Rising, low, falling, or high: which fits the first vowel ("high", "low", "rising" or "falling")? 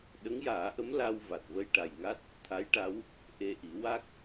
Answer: rising